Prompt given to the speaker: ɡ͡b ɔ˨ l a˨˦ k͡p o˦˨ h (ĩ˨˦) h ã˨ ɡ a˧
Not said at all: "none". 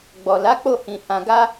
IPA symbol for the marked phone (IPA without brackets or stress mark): ĩ˨